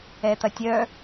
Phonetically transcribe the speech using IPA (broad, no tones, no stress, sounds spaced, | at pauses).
ɛ t̪ ɐ tʲ œ